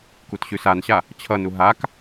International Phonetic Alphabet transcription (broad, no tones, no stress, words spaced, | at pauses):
kutɕʉsanɕa | t͡ɕʰʌnu ɦak